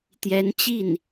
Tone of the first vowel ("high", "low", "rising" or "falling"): rising